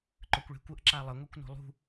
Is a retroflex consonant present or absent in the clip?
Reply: present